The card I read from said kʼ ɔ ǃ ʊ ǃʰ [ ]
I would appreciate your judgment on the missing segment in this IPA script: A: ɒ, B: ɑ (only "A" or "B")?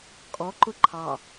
B